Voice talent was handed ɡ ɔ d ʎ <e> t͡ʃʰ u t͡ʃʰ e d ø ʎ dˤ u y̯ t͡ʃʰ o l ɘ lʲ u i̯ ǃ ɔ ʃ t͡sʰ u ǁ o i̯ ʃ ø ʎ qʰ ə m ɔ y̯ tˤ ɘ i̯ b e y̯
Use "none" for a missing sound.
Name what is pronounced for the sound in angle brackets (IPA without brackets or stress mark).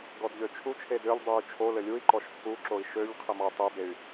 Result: ø